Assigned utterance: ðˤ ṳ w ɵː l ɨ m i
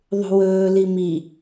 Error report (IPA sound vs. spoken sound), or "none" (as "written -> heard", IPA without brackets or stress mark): ɨ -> i